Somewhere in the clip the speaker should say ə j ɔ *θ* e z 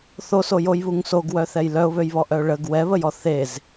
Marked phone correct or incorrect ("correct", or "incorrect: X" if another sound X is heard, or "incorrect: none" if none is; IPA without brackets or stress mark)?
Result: correct